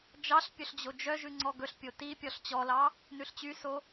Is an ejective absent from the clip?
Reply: yes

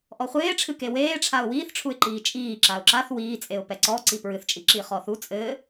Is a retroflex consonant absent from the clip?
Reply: no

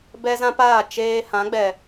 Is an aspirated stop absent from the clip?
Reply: yes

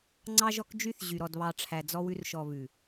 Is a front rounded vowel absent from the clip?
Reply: no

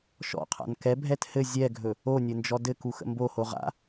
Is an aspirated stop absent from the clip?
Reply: no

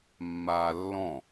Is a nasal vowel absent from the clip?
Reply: no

